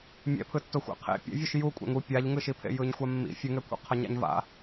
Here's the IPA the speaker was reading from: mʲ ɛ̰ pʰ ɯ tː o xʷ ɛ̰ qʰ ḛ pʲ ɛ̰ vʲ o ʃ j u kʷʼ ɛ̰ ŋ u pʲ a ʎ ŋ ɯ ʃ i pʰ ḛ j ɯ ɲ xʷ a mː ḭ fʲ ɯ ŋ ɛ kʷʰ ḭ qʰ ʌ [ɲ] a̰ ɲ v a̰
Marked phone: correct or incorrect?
correct